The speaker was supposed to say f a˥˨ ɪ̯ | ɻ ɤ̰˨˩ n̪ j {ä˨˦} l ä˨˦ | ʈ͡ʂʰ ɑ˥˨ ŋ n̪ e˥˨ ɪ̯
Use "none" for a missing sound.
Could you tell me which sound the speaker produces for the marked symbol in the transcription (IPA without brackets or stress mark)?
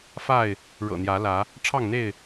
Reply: ä˨˦